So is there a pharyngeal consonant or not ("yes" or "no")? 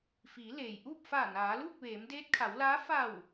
no